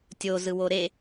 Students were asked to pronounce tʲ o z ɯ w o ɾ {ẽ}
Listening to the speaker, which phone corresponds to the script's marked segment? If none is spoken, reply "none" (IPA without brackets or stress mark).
e